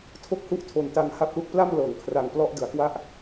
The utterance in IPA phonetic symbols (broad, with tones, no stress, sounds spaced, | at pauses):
tʰ o˥˩ k̚ h u˥˩ ʔ tʰ o˨˩ n t a˧ ŋ h a˥˩ p̚ l u˦˥ k̚ p l a˥˩ m l ɤː˩˦ ŋ kʰ r a˧ ŋ p l ɔ˥˩ ʔ d ɯ˩˦ a̯ k w a˥˩ ʔ